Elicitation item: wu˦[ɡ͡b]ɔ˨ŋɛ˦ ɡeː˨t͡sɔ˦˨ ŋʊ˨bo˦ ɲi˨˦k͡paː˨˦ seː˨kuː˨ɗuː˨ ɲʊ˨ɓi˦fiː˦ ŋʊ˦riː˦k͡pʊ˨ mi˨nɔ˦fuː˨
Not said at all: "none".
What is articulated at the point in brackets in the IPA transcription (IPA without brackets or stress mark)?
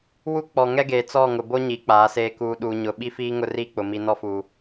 k͡p